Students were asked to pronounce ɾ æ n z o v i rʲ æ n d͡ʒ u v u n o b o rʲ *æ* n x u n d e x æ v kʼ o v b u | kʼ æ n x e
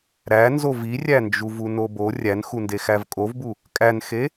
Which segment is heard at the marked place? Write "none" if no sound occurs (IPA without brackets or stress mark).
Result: æ